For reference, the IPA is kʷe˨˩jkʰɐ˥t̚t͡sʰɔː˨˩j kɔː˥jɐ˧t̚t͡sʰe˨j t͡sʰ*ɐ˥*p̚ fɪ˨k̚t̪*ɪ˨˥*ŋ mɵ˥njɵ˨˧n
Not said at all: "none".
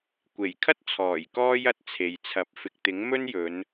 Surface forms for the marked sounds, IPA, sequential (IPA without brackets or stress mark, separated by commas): ɐ˨˥, ɪ˨˥